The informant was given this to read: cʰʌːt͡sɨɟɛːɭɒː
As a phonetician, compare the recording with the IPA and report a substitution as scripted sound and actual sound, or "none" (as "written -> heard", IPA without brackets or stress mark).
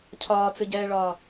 ʌː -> ɒː